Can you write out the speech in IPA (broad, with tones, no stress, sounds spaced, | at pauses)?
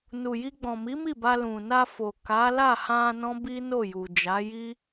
n u˨ j i˧ ɡ͡b ɔ̃˨ m i˨˦ m i˦˨ b a˧ l ũ˨ n a˧ f o˨ k a˨˦ l a˦˨ h ã˧ n ɔ̃˦ b i˦ n o˦˨ j u˨ d͡ʒ a˨˦ j i˦